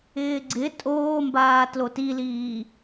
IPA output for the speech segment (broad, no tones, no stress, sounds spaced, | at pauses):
ɪː ɡ͡ǀ ɪ tʼ oː m b aː t l o t i l iː